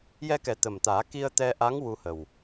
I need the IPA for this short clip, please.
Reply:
j ɛ˧ k ɛ˨˩˦ t̪ ə˨˩ m t̪ aː˨˩˦ k i˧ ə̯ t̪ ɛ˧ ʔ a˧˥ ŋ w u˧ h ə˨˩ w

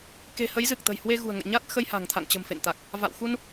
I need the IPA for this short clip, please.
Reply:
k e̤˨˩ h ə˨˦ j z ɨ˨˩ k̚ t̪ ə̤˨˩ j h w e˧ ɣ ṳ˨˩ ə̯ ŋ ə̰˧˨ j ɲ a˦˥ t̚ x ə˧ j h a̤˨˩ ŋ t̪ʰ a̰˧˨ ŋ t͡ɕ ə̤˨˩ m f ḛ˧˨ n t̪ a˨˩ k̚ | v a̰˧˨ w x u˧ n

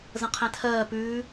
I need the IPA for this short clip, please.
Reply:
z ə̃ qʰ ɛ̃ tʰ ɜː p ʉː

